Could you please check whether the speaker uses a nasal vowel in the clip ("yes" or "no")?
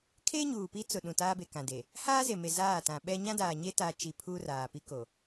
yes